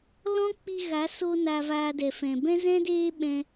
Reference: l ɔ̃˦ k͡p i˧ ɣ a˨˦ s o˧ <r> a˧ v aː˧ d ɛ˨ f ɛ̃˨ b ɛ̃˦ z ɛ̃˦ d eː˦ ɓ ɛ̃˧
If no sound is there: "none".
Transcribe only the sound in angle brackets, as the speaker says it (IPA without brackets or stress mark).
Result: n